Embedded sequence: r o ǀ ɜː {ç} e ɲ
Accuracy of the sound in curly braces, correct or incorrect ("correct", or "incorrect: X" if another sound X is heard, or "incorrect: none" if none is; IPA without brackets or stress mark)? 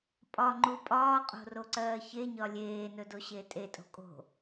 correct